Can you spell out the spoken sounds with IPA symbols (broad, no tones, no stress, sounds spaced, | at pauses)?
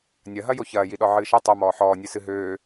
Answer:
nʲ ɐ ɦ ɐ j o ç ɐː j i ɗ ɔ ʕ ɨː ʃ ɐ tˤ o m ɔː ħ ɔː nʲ ɨ s ɨ ɦ øː